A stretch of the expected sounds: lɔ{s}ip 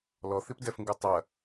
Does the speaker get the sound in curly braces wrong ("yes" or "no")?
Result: yes